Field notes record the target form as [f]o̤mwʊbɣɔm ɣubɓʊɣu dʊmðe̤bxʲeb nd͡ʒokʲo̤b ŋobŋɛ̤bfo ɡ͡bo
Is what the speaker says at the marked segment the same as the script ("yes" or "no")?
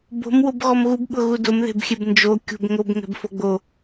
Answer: no